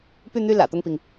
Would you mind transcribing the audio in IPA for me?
py˥˧n̪y˥˩ lä̰˨˩t̪ʊ˥˩ŋpi˩ŋ

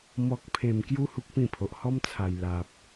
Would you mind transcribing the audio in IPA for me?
mɔ˨k̚pʰẽ˨˩mkju˧ hu˦k̚pĩ˥˧pʰo˨ʔ hɔ˦mt͡sʰa˨˩j la˨p̚

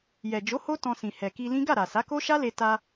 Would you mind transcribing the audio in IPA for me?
jɛ˨d͡ʒo˨˦ ho˦ tɔ̃˧sĩ˨ hɛ˨ki˧lĩ˦ ɡa˦˨ɾa˨sa˨˦ko˦ ʃa˦le˧ ta˧

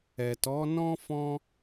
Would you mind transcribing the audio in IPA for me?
ɛ˨tɔ˨˦nɔ̃˦ fɔ̃˦

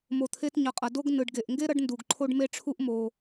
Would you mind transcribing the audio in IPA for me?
mo˨t̪ʰe˦tɲʌ˨qʼʌ˨ do˦ɡ nɯ˩ɖɡe˩ʔŋɡe˥ ɾʌ˥ɖndu˨ɡ ǃʰo˦ɖme˦ʈ͡ʂʰu˦ʔ mo˨

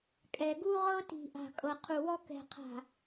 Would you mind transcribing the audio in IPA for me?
kʼɛ˨ɡu˦ʁɤ˦ti̤˨ ʔa̤˨kʼɤ˨qʰu˨wɔ˦ kɛ̤˨qʰa̤˨

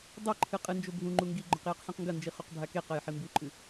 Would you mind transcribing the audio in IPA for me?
dˤeǃʰɨ qʼɨnd͡ʒo bʱũŋ͡ǃu ŋɡiɡ͡ǃɵq jɨqħẽqŋɡɐnd͡ʒi χuqbʱakeqɐj ħimbʉǃʼɨ

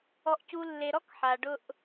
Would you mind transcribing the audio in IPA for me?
ɔ˨ʔcu˨lːe˨ ɾɔ˦k ħa˨ɖʊ˦ʔ

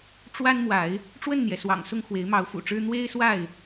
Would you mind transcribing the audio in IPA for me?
ʈ͡ʂwa˦nmwa˨˦ɪ̯ | ʈ͡ʂwə˥˨nn̪jɛ˩swɑ̰˨˩ŋsʊ˥˨ŋ xwe˨˦ɪ̯mɑ˨˦ʊ̯fṵ˨˩ʈ͡ʂɻ̩˦ n̪we˦ɪ̯swa˥˨ɪ̯

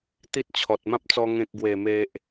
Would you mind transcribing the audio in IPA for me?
t̪i˦t̚t͡ɕʰɔ˨t̚mã˦p̚t͡sɔ˧ ŋẽ˨k̚ɡwe˨˩me˨ʔ

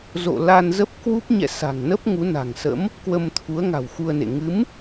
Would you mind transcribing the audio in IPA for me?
zo̰˧˨ la˧nzə˦˥p̚ kwu˦˥p̚ ɲɛ̰˧˨ sa̤˨˩ŋnə˦˥p̚ ŋu˨˦na̤˨˩ŋsə̰˧˥m | kwə˧mt̪ʰu˨˦ə̯ŋa̤˨˩w xu˧ə̯nḛ˧˨ ŋɨ˨˦m

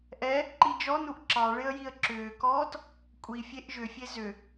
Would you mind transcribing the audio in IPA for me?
ʔɛ | ǃid͡ʒɔnuʔ ǁɑɭɪə̯ jiə̯ǁʏːkɔːt | kʷʼifʲeʔ ʒʏfʲe zʏ

